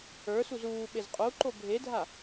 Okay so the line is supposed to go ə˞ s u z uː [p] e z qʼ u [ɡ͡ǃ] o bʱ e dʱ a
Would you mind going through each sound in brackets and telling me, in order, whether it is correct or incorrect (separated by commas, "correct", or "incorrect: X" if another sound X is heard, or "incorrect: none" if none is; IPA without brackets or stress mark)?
incorrect: ɓ, incorrect: ǃ